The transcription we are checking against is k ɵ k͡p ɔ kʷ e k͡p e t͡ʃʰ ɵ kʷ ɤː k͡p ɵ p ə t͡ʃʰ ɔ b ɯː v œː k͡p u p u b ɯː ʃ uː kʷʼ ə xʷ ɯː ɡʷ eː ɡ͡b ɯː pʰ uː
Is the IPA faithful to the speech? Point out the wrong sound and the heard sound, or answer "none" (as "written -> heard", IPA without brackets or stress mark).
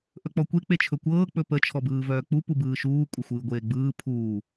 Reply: k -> ʔ